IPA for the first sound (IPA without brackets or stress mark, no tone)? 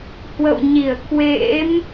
h